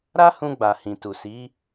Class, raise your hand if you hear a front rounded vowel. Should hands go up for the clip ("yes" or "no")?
no